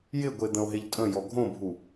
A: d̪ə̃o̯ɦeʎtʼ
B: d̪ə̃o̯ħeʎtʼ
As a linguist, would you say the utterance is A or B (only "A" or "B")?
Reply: A